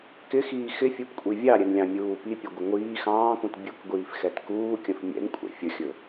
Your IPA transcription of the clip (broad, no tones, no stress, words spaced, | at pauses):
kɪxiː xɪfʲupkʷʼi vʲɑɾʲɛnlʲɑ̃ mʲuː pipʲɛɡʷɪ ŋʷiː xɑ̃ːkũt bʲukɡʷiːfxɛt kuːkʲə̃f mʲɛ̰nkʷʼɛ̰ fʲəxʲɵ